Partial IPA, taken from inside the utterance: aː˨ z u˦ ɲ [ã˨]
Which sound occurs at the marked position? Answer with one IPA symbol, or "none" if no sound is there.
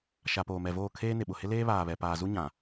ã˨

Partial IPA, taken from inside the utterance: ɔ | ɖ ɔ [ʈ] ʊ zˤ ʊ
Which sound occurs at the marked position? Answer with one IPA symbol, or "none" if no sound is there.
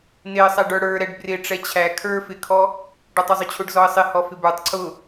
tˤ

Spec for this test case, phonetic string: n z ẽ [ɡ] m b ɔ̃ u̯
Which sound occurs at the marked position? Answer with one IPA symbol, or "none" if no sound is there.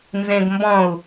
ɡ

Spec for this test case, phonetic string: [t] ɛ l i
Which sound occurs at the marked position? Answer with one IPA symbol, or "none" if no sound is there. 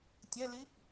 tʲ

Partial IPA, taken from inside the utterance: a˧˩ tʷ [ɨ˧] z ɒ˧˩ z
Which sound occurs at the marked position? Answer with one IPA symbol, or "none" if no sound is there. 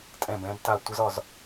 ə˧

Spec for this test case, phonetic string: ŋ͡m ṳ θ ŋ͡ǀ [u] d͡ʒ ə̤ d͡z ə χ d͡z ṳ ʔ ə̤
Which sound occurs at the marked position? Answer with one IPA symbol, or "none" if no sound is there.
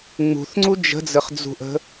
u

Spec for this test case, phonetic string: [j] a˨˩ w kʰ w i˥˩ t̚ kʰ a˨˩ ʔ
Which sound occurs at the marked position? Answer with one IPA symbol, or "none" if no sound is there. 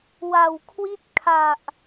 w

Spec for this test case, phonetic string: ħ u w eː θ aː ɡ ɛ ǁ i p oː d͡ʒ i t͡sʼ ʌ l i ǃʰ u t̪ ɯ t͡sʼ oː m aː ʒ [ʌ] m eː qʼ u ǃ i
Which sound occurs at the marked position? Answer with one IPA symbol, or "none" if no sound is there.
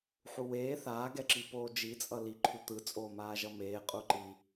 ʌ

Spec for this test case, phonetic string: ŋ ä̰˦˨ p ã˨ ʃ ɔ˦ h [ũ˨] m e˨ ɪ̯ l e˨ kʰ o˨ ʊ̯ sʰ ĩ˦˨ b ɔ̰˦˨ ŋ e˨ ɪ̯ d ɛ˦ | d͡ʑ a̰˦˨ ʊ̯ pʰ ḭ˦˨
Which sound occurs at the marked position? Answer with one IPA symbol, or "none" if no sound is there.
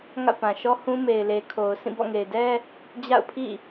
ũ˦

